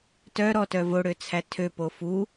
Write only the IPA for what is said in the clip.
t œ ɾ ɔ t œ v o ɽ ø t͡sʰ æ tʰ ø p o f u

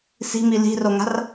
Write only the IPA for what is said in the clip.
s i̤ m i l i̤ r o ŋ a̤ r

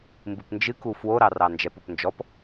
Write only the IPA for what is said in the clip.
m b ɨ p n d͡ʒ ɨ k u f w o ɾ ɑ r ɑ n d͡ʒ ɛ p o p n d͡ʒ ɔ p

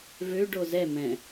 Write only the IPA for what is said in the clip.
v ø ɖ o z ɛ m ɛ̃

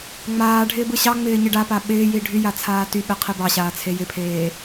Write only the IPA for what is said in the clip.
ŋ͡m aː ɖʱ ɪː b ɯ ɕ ɑ ŋ͡m ɪː ɲ ɪ ɖ a p a ɓ ɪː j i ɖʱ y j a t͡sʰ aː t y ɓ e qʰ i b ɑ ɕ aː t͡sʰ e j ɪ pʰ eː

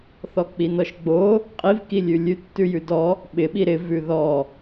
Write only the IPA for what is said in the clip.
θ ɔ k͡p i n ɔ ʃ ɡ͡b o | qʼ i v k i lʲ ʉ lʲ ʉ tː ʉ j ʉ d ɔ | ɓ ɪ ɓ i ɾ ɪ v ʉ ð ɔ

